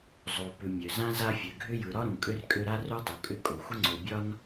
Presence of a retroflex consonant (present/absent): absent